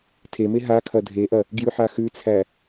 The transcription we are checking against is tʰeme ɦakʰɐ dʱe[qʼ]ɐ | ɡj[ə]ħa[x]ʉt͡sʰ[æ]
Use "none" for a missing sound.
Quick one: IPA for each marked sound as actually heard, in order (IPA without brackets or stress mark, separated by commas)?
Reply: ʔ, ʉ, x, æ